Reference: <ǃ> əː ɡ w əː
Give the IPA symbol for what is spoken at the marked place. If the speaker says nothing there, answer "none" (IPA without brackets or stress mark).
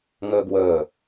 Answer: ŋ